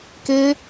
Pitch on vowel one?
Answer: high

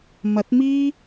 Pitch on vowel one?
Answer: rising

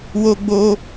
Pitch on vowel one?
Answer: high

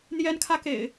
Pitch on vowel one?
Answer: high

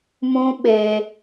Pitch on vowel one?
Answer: high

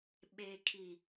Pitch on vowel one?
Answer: low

